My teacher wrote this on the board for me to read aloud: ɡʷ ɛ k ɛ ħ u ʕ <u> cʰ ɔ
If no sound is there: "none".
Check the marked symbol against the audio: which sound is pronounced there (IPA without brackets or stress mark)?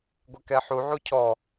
u